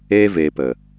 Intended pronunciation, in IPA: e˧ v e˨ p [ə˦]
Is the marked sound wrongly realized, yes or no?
yes